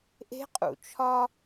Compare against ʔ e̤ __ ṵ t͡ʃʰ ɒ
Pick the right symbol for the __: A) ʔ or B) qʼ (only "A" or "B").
B